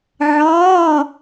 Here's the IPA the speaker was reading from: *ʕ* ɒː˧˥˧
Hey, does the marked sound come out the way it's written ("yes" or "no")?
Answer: yes